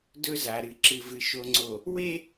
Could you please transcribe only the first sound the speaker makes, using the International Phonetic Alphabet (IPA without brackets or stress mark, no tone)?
d